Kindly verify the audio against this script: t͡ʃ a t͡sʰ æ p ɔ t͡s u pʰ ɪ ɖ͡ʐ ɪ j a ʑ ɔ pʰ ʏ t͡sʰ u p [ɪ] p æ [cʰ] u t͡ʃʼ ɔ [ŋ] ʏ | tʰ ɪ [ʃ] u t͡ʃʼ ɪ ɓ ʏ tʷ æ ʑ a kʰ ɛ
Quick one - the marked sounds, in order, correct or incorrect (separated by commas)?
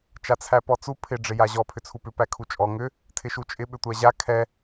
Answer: incorrect, incorrect, correct, correct